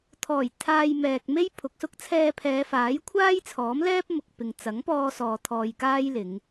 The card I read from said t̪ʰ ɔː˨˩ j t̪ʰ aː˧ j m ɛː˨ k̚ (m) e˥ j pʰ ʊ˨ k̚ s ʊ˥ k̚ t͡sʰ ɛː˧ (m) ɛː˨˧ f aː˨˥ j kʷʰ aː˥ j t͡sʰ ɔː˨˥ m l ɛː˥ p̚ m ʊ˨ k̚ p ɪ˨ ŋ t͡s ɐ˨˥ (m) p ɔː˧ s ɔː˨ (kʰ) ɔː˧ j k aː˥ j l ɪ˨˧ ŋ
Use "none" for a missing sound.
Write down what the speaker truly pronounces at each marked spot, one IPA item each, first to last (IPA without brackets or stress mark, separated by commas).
m, pʰ, ŋ, t̪ʰ